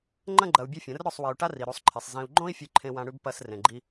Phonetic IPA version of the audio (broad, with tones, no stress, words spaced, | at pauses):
ŋ͡ǃɐ̃˦ ɡ͡ǃɐ˧u̯bʲe˦fʲɐ̃˨˦r ɾɵ˦˨sˤwi˨u̯ʈa˦ ri˨ɾu˨˦sˤǃʰe˨sˤ zĩ˨u̯ɡ͡ǃõ˦i̯ fʲʉ˧ǃʰẽ˧wã˧ɽʉ˧b pɐ˧s rẽ˨ɡ͡ǃi˧